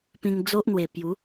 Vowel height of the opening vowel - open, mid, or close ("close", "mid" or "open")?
close